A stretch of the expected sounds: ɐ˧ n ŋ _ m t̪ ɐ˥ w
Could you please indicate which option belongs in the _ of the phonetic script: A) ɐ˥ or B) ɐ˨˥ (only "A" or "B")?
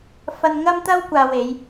A